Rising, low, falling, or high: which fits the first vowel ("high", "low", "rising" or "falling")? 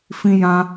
high